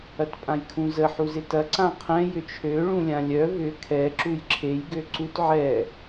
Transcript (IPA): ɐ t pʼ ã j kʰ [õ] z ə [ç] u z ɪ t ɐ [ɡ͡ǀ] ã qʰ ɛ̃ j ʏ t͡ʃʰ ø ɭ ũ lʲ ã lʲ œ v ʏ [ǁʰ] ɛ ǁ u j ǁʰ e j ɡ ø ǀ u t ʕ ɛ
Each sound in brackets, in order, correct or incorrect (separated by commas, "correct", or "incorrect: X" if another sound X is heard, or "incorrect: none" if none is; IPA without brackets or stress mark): incorrect: ũ, incorrect: ħ, incorrect: ǀ, incorrect: kʰ